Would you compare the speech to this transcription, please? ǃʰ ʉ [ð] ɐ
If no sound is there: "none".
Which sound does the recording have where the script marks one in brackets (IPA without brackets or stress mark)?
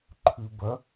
b